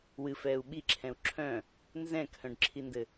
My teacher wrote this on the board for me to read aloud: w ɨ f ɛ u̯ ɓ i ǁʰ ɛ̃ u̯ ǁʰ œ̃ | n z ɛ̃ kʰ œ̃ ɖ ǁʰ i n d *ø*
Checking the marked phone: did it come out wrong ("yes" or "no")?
yes